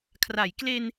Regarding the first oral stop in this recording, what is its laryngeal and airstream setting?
aspirated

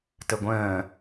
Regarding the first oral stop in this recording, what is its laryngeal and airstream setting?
plain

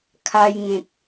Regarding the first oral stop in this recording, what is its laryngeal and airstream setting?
aspirated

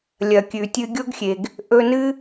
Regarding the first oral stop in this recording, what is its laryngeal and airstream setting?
plain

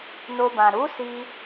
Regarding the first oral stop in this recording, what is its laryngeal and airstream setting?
plain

